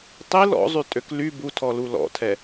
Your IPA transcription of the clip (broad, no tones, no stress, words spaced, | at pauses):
tˤil ɔ̰zˤytʼøk ly butʰɔlu lɔ̰tʰɛ